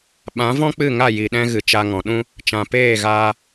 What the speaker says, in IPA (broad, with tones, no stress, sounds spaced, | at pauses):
ɓ ã˨˦ v ɔ̃˦ k͡p ɨ˦˨ ŋ a˦˨ j i˨ ɗ ɛ̃˧ ɣ ɨ˨ t͡ʃ a˧ ŋ ɔ̃˨ ɗ ũ˦ | t͡ʃ ã˨ p eː˦˨ ɣ aː˧